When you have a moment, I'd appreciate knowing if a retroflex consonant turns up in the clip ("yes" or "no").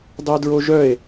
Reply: no